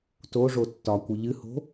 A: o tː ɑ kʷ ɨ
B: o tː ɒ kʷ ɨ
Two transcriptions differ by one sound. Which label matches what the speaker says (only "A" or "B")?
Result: B